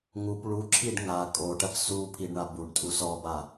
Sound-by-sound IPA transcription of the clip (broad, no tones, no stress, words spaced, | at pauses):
ŋup ɭuǁʰiɖ ŋa kʼoʈɐp su pʰiɖɳa buɖtʼu sɔba